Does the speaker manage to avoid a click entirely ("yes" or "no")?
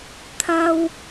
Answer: yes